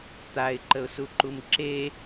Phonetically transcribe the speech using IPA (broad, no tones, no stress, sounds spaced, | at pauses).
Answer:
t̪ a ɪ̯ ǃ ə ʊ̯ s u ǃ u m ǁ e